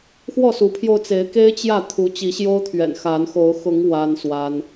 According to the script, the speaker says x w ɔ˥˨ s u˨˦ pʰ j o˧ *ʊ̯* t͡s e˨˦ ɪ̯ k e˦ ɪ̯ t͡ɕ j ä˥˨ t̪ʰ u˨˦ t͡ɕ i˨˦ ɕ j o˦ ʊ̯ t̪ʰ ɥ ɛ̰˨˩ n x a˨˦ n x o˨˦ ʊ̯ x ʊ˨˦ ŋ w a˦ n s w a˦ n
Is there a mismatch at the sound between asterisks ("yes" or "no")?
no